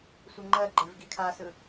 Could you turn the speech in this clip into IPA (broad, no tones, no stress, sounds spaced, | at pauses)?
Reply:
sʷ ɜ ŋ͡ǃ ɜ ɡ͡ǃ e v ɡ i kʰ a s ɯ